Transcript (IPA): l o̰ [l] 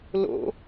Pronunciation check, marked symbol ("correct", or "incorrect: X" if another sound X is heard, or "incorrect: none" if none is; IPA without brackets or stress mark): incorrect: none